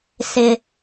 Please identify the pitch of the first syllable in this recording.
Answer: low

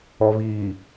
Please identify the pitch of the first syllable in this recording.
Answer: low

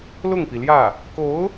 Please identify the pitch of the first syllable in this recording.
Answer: falling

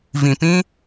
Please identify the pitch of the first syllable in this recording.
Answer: low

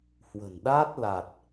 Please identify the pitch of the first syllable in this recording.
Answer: low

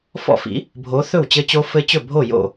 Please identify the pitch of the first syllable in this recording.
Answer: falling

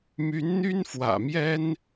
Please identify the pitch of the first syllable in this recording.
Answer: rising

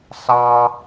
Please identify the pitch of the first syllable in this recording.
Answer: high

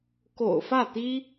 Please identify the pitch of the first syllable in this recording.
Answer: low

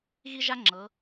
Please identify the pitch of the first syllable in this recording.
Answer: high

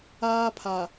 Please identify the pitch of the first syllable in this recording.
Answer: high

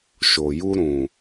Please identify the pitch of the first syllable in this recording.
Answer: low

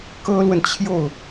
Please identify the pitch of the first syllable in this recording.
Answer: high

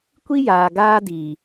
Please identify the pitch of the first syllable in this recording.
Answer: high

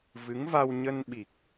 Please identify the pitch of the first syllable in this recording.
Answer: rising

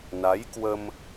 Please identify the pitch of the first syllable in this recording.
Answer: rising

